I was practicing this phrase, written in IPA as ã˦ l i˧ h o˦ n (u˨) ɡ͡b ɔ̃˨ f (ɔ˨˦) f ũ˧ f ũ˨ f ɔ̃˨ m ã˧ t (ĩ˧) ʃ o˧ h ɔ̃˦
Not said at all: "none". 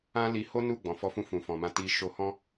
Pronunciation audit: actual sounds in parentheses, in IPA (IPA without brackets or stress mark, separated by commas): u˦˨, ɔ˨˦, i˧